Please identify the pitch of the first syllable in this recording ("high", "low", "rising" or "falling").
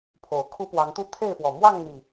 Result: low